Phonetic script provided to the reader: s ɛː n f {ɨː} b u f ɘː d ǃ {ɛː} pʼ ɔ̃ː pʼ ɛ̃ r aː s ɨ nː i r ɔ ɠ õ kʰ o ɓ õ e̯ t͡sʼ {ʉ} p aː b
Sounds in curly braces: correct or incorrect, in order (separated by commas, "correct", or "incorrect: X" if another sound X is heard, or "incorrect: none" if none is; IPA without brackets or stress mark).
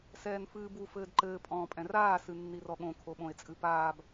correct, incorrect: ɘː, incorrect: ɨ